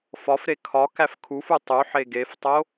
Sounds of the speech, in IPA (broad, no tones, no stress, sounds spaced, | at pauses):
f ɒ f ɾ e kʰ ɒ k æ f kʰ u f u tˤ u ħ e ɡ e f tˤ o